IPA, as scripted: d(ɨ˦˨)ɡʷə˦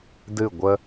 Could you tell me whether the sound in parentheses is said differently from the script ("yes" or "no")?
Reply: no